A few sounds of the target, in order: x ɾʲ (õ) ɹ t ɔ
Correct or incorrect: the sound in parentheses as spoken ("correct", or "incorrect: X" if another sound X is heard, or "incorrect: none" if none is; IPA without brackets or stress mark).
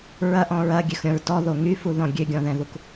incorrect: ɔ̃